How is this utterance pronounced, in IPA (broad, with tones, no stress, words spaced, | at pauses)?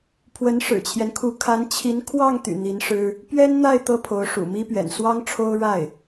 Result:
pʰwə˧˥nʂɻ̩˨˩t͡ɕʰjɛ˦nkʰu˧˥ kʰa˧˥nt͡ɕʰi˧˥n kʰwɑ˥˩ŋt̪y̰˨˩ n̪i˧˥nʂɻ̩˥ | pɥɛ˥nn̪a˥˩ɪ̯ t̪ɤ˥pʰo˧˥ʊ̯ʂṵ˨˩ mi˥pɥɛ̰˨˩n swɑ˥ŋʈ͡ʂʰo˥ʊ̯ ɻa˥˩ɪ̯